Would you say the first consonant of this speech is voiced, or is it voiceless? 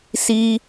voiceless